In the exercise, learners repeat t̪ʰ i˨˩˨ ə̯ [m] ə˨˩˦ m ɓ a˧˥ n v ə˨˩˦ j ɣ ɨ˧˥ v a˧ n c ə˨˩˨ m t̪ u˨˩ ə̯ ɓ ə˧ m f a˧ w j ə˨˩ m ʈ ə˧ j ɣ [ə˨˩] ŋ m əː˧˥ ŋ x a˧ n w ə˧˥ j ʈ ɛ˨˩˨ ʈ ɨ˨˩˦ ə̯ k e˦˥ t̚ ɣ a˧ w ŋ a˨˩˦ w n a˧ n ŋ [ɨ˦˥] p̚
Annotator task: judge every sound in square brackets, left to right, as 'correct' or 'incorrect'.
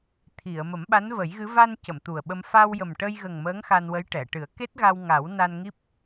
correct, correct, incorrect: i˦˥

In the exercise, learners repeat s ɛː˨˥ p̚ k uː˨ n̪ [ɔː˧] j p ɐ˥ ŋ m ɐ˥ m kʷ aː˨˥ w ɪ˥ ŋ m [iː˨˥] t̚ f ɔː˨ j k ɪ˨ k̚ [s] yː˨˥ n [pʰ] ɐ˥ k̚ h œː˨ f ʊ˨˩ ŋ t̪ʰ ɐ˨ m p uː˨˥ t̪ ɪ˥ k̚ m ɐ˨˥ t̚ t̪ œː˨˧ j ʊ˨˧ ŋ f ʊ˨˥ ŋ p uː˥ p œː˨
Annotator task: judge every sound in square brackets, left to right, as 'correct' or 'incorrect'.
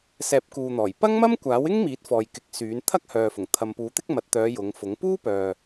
incorrect: ɔː˨˩, correct, correct, incorrect: t̪ʰ

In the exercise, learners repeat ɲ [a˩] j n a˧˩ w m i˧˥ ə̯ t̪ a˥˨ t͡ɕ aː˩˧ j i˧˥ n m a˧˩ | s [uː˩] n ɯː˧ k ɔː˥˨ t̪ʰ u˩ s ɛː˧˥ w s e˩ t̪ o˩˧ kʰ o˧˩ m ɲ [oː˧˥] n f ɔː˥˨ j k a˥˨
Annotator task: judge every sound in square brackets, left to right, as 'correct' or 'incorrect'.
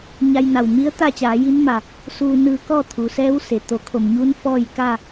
incorrect: a˧, incorrect: uː˧, incorrect: uː˧˥

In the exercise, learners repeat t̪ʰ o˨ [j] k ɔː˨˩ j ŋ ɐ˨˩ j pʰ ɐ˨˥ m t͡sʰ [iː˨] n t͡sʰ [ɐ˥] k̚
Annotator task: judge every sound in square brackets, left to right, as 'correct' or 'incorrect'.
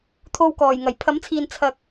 incorrect: w, correct, incorrect: ɐ˨

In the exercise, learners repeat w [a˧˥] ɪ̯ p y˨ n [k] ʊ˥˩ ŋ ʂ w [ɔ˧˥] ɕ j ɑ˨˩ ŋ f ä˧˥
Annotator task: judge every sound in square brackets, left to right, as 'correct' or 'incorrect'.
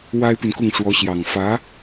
incorrect: a˥, correct, correct

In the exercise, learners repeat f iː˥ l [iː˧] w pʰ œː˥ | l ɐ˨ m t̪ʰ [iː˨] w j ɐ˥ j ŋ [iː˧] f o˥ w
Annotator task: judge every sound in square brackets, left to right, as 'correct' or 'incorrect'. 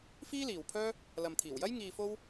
incorrect: iː˨, incorrect: iː˨˩, correct

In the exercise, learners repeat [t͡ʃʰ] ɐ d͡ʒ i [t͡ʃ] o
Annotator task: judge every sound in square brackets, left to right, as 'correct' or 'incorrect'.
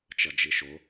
incorrect: t͡ʃ, incorrect: ʃ

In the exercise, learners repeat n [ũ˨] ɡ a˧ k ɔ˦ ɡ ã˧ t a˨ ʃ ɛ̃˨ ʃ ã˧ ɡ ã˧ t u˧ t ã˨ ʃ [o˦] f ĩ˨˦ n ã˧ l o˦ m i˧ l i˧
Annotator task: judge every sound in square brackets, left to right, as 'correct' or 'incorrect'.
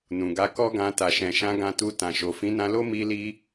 correct, incorrect: o˨

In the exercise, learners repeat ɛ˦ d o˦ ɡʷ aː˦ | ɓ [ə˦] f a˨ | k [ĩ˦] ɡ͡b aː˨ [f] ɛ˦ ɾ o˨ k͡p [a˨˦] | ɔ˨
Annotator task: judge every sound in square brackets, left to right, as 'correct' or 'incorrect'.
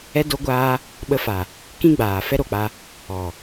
incorrect: ə˧, correct, correct, incorrect: a˧

